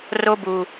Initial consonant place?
alveolar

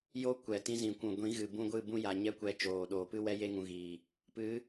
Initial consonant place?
palatal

